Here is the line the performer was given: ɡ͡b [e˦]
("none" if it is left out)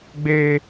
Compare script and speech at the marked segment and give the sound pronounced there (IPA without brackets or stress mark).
eː˦